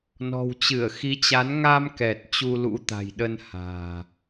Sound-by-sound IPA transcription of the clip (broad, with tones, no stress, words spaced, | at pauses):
nɔ̤˨˩wt͡ɕɨ˧˩ə̯xi˨˦t͡ɕa˨˦n ŋa˧mkɛ˨˩t̚ t͡ɕu˧lṵ˧˥t̪a̤˨˩jɗə˧n ha̤ː˨˩